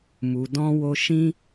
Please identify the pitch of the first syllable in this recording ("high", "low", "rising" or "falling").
low